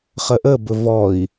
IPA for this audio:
χəʔəbɵ vɔi̯

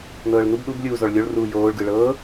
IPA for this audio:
nɤːɭnub ɗub lʲuːzɔɭlʲoɭ ruːjoːɭ ɡɯɭɤː

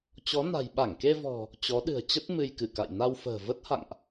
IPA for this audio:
t͡ɕɔ˨˦na̤˨˩j ɓa˧˩ŋke˧vɔ̤˨˩ | t͡ɕɔ˨˦ɗɨ̤˨˩ə̯t͡ɕə˦˥t̚ mɨ˧jkɨ˧˩ka̰˧˨j na˧wfə̤ː˨˩ və˦˥t̚ha̰˧˨ŋʔ

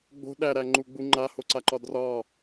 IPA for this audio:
ɡ͡bo̤ ɗæɾæŋ͡ǃuɡ͡bu ŋ͡ǃahoǀaǃɒ drɒ

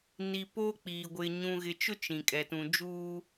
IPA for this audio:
ni˨poː˦k͡piː˨ ɡʷɪ˨ ɲũ˨ɣɪ˨t͡ʃʊ˦ t͡ʃĩ˨kʼɛ˨ tũ˨d͡ʒuː˦

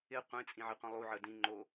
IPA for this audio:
ɪ qʷẽt͡sʼĩ ʕɪqʷĩlˠuʕə dĩ ŋ͡ǃo

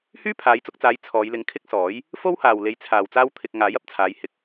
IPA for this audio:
hyː˥pʰaː˨˧jt͡sʊ˧k̚t͡saː˨˧j t͡sʰɔː˨˧jlɪ˧ŋ kʰɪ˥k̚sɔː˨˥j | fo˥whaː˨w le˧jt͡sʰaː˨wt͡saː˥w t̪ʰɪ˧k̚ ŋaː˨˥jɐ˨p̚t͡sʰaː˨˧j hɪ˨k̚

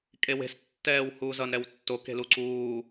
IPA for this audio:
kʼewe̤s tːɛːwhuːzʌn ɾɛwtːo ke̤luǀuː

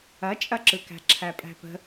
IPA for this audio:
ɐt͡ʃʼɐǁɯkæ̤ ǁʰæpʼæ̤pə̤

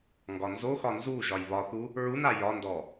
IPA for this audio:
ŋɡɒnzoxɒ nzu ʒɒjβɒθu | ɹuna jɒndɔ

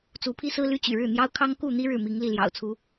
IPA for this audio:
t͡su˨˦pʰi˦sɹ̩˦ ly˦t͡ɕy̰˨˩ɻɻ̩˥˨n̪jɑ˦ʊ̯ kʰɑ˦ŋku˥˨ n̪i˦ ɻɻ̩˥˨mi˨˦ŋli˥˨ ljɑ̰˨˩ʊ̯t͡sʰu˨˦

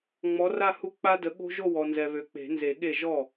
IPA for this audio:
ŋ͡mɔ˨˥ra˥˧hu˦˥ k͡pa˦˥də˨˥ɠo̤˦˥ ʒo˥˧wɔ˨nzɛ˨ βø˨k͡pe̤˨˩˦nze˨˩˦ɠe˥˩ ʒɔ˥˩

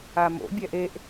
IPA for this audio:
amo̰ bʲɛʔeʔ

